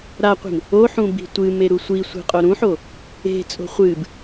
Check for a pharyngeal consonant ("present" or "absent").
present